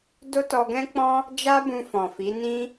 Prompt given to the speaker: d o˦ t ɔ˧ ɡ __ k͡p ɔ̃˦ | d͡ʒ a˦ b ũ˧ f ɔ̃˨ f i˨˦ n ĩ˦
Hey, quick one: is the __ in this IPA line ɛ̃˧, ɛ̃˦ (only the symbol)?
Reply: ɛ̃˦